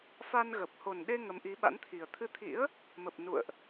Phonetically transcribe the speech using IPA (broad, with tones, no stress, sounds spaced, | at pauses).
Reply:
f a˧ n ɣ ə˨˩ p̚ h o˨˩ n ɗ e˧ ŋ ə˨˦ m ʔ i˨˦ ɓ a̰˧˥ n t̪ʰ i˨˩ ə̯ t̪ʰ ɨ˧ t̪ʰ ḭ˧˥ ə̯ | m ə˨˩ p̚ n ṵ˧˨ ə̯ ʔ